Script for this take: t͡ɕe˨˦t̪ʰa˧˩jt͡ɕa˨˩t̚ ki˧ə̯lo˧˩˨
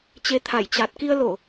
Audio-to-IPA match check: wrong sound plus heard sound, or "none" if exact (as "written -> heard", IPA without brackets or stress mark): none